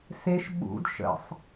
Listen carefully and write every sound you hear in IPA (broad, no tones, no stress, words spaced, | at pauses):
seʃ ɓṵd ʃə̰sˤ